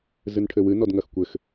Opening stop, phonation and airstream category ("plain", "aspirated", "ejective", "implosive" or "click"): aspirated